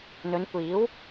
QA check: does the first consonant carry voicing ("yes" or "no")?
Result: yes